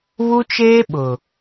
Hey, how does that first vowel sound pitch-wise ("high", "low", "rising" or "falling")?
high